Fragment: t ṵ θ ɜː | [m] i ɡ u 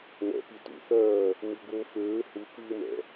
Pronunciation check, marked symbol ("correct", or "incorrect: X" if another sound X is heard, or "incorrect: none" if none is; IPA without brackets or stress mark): correct